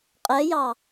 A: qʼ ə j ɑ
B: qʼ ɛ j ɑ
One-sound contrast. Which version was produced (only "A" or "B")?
B